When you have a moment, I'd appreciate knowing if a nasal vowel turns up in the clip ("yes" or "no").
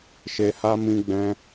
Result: yes